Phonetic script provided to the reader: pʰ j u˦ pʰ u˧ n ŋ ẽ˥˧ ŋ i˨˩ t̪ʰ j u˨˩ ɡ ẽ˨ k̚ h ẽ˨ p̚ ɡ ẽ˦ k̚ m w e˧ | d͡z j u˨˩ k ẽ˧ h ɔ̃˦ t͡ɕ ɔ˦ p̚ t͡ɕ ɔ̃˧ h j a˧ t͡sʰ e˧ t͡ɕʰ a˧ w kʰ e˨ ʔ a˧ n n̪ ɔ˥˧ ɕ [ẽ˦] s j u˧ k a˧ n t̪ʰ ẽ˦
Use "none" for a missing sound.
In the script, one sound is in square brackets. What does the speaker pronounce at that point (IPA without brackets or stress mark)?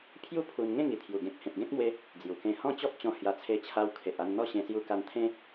ẽ˧